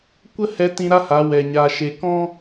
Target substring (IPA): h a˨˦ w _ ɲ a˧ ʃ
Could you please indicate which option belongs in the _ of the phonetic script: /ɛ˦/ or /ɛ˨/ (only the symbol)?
ɛ˨